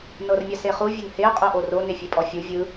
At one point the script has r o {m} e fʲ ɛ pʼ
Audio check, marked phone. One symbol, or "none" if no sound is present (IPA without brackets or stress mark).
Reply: n